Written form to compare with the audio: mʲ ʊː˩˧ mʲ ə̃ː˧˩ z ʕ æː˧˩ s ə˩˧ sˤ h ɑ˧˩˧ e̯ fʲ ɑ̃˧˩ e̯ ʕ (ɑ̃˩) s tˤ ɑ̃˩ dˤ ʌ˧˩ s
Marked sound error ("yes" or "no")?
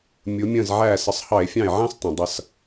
yes